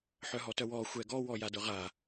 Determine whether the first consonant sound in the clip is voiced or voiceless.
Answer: voiceless